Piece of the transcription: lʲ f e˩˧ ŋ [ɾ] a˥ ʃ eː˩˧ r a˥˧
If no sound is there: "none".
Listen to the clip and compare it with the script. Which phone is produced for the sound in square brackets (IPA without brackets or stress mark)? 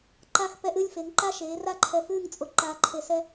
ǃ